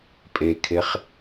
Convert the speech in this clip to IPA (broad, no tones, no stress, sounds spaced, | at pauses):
pʼ e kʰ e χ